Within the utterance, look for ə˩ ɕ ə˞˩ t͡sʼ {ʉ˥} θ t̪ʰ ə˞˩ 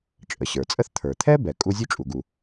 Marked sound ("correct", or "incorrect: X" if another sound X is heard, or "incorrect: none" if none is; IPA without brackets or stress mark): incorrect: ə˥